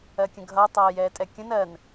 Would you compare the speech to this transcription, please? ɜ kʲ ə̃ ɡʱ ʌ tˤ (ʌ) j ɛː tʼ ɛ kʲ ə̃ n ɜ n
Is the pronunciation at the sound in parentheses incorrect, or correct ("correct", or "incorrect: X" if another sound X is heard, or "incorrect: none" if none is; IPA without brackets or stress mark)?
incorrect: ʌː